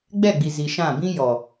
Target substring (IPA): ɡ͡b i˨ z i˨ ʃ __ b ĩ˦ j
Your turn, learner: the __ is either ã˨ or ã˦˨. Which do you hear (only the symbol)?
ã˦˨